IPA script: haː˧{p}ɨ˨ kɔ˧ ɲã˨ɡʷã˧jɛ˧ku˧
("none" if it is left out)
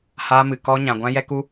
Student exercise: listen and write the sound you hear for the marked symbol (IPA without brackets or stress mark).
m